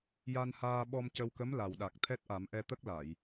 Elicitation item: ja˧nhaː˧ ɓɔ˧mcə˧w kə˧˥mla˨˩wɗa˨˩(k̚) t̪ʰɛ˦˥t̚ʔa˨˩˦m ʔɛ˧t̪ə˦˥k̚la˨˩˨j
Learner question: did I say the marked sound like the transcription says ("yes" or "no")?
yes